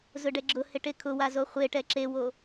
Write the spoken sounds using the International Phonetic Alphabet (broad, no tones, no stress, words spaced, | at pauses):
zʊɖɛɡ͡ǁʊhɪ ʈekʰʊwa zoχʷeʈɛ ǁewo